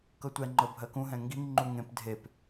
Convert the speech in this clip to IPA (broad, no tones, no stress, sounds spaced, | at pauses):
k ɤ tʷ ɛ ŋ͡ǃ ɤ bʱ ɜ k ũ ɦ ɛ̃ ŋ ɡ i ŋ ŋ͡ǃ u ŋ ẽ p dʱ e p